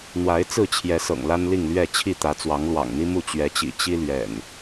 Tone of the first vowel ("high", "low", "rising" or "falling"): rising